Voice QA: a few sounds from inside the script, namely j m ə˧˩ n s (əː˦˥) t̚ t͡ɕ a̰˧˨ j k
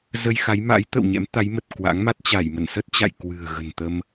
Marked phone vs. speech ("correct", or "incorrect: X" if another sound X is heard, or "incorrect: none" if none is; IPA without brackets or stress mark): incorrect: ə˦˥